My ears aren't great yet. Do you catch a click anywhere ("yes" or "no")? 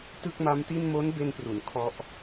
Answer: no